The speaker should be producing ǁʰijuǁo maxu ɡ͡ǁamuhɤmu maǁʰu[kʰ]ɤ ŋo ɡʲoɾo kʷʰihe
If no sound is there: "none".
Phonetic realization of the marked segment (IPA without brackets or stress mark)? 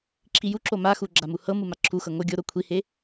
x